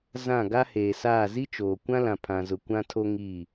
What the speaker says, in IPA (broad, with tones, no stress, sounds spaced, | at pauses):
z ã˦˨ ɡ a˦ h eː˨ s aː˦˨ z i˦ t͡ʃ oː˨ kʷ ã˦ l ã˨ pʰ ã˨ z ʊ˨ kʷ ã˦ tʰ o˦ ŋ iː˦˨